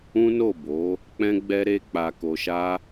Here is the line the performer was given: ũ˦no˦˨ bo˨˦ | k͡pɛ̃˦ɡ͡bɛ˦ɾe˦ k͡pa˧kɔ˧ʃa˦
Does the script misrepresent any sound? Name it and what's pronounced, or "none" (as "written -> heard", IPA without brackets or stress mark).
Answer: ɔ˧ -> o˧